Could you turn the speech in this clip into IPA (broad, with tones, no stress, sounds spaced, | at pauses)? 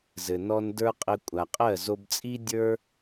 z ɘ˨ n ɔ˧ n d ə˞˦ qʼ ɘ˧ kʷʼ a˨ qʼ ɜ˦˨ z o˧ b t͡sʼ i˦ dʲ ə˞˦